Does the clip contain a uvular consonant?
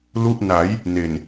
no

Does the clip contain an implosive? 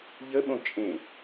yes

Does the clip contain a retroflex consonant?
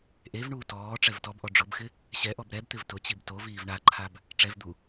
yes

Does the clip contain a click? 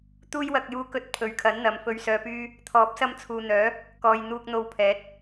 no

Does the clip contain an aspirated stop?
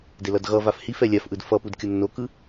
no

